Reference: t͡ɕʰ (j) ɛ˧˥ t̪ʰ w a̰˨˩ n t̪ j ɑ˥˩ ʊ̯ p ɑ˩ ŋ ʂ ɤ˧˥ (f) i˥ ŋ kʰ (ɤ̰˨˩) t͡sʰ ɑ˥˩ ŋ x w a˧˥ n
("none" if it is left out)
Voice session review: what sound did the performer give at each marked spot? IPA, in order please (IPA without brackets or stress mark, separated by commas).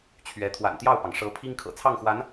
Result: ɥ, pʰ, ɤ̰˨˩